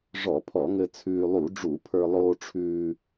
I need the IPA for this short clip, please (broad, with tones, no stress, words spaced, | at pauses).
ʐɔ˧˩˧pʰɔ˧˩˧ŋɘ˧ t͡sʰʉː˧lˠu˧˩˧ɖ͡ʐu˧˩˧pʰə˞˧ lˠoː˧ʈ͡ʂʰʉː˧